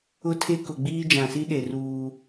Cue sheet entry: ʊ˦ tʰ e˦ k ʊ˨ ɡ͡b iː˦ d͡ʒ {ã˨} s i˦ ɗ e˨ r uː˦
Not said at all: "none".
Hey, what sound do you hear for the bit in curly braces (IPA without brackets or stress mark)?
ã˨